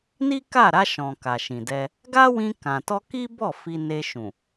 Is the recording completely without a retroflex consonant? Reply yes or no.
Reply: yes